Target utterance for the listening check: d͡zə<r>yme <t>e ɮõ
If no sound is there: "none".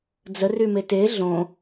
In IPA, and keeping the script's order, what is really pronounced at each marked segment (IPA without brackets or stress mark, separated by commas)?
r, t